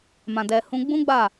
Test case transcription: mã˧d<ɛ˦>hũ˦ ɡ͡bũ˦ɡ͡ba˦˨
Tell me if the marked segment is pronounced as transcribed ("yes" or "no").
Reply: no